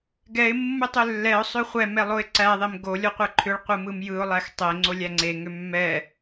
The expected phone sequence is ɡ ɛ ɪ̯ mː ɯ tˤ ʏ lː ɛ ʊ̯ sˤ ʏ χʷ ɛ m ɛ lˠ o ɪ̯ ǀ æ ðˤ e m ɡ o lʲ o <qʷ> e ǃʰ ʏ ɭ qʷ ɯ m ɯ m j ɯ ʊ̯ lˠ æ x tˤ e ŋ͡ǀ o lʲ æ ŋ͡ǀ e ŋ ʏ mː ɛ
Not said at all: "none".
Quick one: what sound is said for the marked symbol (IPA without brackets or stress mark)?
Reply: qʷ